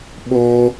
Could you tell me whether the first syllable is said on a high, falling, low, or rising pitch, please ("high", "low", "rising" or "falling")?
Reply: high